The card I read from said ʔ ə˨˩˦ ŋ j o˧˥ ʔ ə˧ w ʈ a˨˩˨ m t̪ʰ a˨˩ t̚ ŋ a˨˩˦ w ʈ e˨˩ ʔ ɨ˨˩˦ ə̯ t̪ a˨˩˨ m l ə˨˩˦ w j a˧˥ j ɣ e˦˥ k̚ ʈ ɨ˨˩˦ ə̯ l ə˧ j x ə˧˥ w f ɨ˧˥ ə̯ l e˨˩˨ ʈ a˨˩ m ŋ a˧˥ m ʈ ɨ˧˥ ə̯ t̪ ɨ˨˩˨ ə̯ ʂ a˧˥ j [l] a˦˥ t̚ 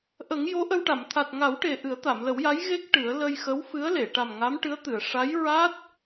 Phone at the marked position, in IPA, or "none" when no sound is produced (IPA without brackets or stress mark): ɹ